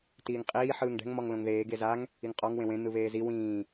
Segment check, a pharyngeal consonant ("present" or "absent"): present